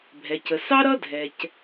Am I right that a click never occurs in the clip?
yes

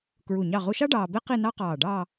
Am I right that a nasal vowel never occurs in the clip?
yes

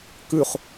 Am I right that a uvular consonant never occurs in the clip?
no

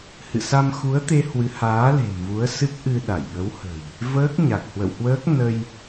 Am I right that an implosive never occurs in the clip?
no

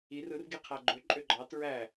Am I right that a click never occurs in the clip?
no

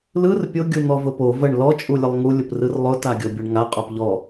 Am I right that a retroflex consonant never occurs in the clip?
no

